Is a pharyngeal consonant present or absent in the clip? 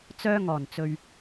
absent